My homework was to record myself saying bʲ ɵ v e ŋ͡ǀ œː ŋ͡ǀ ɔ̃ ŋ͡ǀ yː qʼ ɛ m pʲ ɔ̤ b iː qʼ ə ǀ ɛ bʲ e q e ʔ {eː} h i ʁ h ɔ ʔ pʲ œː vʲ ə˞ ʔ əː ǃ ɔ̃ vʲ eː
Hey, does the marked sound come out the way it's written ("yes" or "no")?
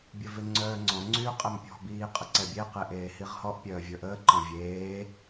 yes